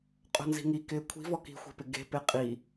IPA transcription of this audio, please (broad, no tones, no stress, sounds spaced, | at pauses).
qʼ o̤ n z i̤ ŋ i k ɪː kʷʰ i̤ v ɔ k i̤ xʷ i̤ p ɪ ɡ e̤ p e qʼ i